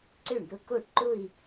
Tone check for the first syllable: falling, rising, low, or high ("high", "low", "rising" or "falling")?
falling